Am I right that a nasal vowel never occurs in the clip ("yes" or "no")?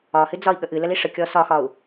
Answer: yes